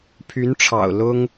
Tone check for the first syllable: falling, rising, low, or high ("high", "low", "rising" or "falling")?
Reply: rising